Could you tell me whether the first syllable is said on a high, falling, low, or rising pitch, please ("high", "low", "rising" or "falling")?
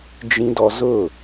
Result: high